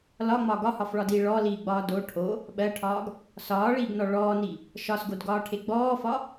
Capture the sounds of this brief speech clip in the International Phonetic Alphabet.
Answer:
l ɒ ŋ͡m ɒ ɡ ɒ h ɒ f ɭ ɒ d iː ɭ ɔ l iː ɡ͡b ɒː d o ʈʰ o | ɓ ɜ ʈʰ ɒː ɡ | s ɒː ɭ iː ɡ n ɔ ɭ ɔː n i | ʃ ɒ s ɡ o d ɡ ɒː ʈʰ e ɡ͡b ɔː f ɒ

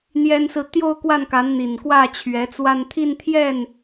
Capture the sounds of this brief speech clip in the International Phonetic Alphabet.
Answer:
n̪ j ɛ˥ n s ɹ̩˥˧ t̪ j o˥˧ ʊ̯ k w a˥˩ n k a˧˥ n n̪ i˨˩ n k w ä˥˩ t͡ɕʰ ɥ ɛ˧˥ t͡s w a˥˧ n t̪ʰ i˥˧ n t̪ʰ j ɛ˥˩ n

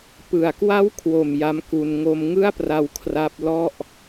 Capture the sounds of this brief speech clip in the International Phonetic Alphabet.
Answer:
p ɯ˨˩ a̯ k w a˦˥ w kʰ w o˨˩ m j a˦˥ m k u˧ n ŋ o˧ m ŋ ɯ˥˩ a̯ p r a˧ w kʰ r a˦˥ p̚ l ɔ˥˩ ʔ

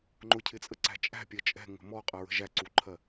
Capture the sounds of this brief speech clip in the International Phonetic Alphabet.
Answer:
ŋ͡ǃ ʊ cʰ ɪ t͡sʼ ə ǀ æ̤ t͡ʃʼ æ̤ pʲ ɜ t͡ʃʼ ɛ̤ ŋ ə̤ m ɔ qʼ ɜ ɹ ə̤ ʒ æ ǀ u ǃʰ ɜ

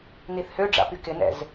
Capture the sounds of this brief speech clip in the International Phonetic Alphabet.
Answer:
n i θ h ø ɖ͡ʐ a̰ p y k ɪ n ɛ̰ z

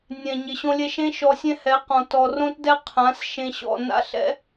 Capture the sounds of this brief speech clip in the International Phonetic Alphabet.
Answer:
nʲ ɛ̃˨ ɲ ɪ˨ ɕ õ˧ lʲ ɛ˧ ʃ ẽ˦ ʃ ɔ˧ sʲ ɛ̃˦ h ɛ˨˦ q ɔ̃˨ t ɔ˨ r õ˦ t d ɛ˦ qʰ ã˨˦ s ʃ ẽ˧ ɕ ɔ̰˦˨ n a̰˦ ɬ ɛ̰˦

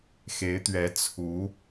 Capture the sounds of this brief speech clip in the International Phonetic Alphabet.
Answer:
x e˧˥ ɪ̯ t̪ ɥ ɛ˧˥ t͡sʰ u˧˥

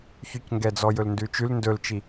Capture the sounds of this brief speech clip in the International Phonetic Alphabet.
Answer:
ç y c ŋ ɡ ɛ d͡z ɔ j ɵ l n d ʉ t͡ʃ ʉ l n d ɵ l t͡ʃ i

